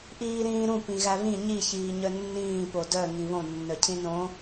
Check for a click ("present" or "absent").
absent